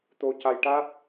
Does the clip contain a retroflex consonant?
yes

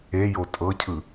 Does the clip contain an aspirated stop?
yes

